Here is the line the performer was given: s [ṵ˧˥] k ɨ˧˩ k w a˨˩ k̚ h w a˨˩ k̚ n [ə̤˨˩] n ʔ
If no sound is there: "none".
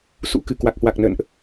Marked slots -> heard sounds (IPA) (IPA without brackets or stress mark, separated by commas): ṵ˧˥, ə̰˧˨